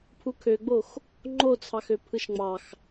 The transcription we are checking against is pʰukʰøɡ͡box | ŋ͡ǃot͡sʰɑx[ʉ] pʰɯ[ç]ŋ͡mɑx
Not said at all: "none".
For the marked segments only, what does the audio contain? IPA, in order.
ø, ʃ

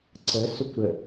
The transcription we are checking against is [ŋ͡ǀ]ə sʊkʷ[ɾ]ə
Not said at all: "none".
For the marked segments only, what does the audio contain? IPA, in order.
ǀ, ɾ

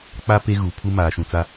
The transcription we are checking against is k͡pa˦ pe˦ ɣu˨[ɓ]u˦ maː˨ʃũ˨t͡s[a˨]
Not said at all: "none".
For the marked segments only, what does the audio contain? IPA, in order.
pʰ, a˦

